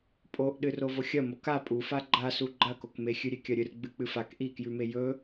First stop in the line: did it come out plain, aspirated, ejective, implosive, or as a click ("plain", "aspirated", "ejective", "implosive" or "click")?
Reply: ejective